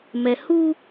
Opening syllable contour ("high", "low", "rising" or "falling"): low